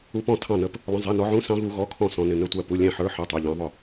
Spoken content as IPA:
u˦˥ p ɔ̃˥˨ tʰ ɑ̃˥˨ n ə˦˥ p | lˠ ə̃˧˥˧ zˤ æ˧˥˧ n ɔ˦˥ ʕ ũ˧˥˧ s ɑ̃˦˥ ɣ u˦˥ ɣ ɔ˧˥˧ kʰ ɔ̃˥˨ s ɔ̃˦˥ n ɪ˧˥˧ n ə˥˨ tʷ æ˥˨ p u˧˥˧ lʲ æ̃˥˨ ħ ə˞˦˥ ħ ə˞˧˥˧ tˤ æ˧˥˧ ʎ ɑ̃˦˥ ðˤ ʊ˥˨

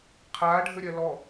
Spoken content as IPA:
qʰ aː ɖʱ ə ɾʲ ɜ l ɔ

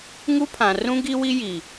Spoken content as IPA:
ŋ u˦ pʰ ã˨ r ũ˦ ɡ i˦ w i˦ j i˨

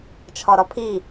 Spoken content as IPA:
t͡ʃʰ ɒ ɾ ɒ pʰ i

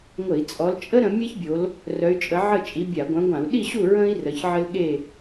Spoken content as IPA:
ŋʷ ə˧˩˧ i̯ t͡sʼ ɔ˨˦ l t͡ʃʼ ə˥ ɾ ə̃˨˦ mʲ ɛ˥ ç bʲ o˨˦ l | r œ˨˦ y̯ t͡ʃʼ ə˨˦ ʕ ə˥˨ t͡ʃʼ i˨˦ bʲ a˧˩˧ ɡʷ œ̃˨˦ ɡʷ ã˧˩˧ u̯ ɗ i˥˨ ɕ u˥˨ ɹ ə̃˥ i̯ r ə˨˦ ç ʕ ə˥ l ɠ e˥˨

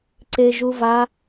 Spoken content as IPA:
ǀ e ʒ u v a

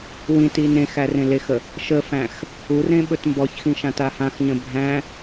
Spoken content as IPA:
w ĩ t i n ẽ x æ r ẽ l e x ə | ʃ ə f æ̃ x | u r ẽ ɓ ɵ t m b ɔ ç x ĩ ʃ ã t a h ã x ɲ ə̃ bʱ æ̃

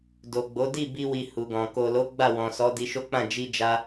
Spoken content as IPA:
d o˨ ɡ͡b o˨˦ d i˦˨ b i˧ w i˨ h u˨ ɡ ɔ̃˨ k o˨ l o˨˦ ɡ͡b a˦˨ w ɔ̃˨ s ɔ˨˦ d i˧ ʃ o˦ k͡p ã˦˨ d͡ʒ i˧ d͡ʒ a˧

